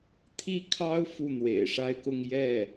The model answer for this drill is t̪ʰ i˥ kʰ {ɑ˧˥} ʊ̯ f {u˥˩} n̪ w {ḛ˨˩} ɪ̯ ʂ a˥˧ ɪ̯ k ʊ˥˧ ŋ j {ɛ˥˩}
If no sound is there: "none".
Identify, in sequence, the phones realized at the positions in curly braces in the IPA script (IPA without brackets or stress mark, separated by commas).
ɑ˥, u˥˩, ḛ˨˩, ɛ˥˩